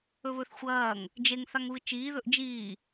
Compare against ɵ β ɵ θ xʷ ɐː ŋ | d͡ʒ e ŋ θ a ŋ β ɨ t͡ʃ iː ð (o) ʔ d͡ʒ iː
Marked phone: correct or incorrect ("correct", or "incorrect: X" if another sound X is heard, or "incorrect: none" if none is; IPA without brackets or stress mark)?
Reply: incorrect: ɵ